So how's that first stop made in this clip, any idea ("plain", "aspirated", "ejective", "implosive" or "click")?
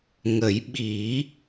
implosive